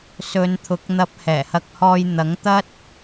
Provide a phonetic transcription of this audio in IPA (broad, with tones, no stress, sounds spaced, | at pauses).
s ɵ˨˧ n t̪ʰ ʊ˨˥ k̚ n̪ ɐ˧ p̚ h ɛː˨˩ h ɐ˧ k̚ h ɔː˧ j n̪ ɐ˨˥ ŋ t̪ ɐ˥ t̚